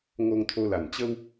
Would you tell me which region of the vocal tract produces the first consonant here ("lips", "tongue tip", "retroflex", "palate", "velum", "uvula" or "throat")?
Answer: velum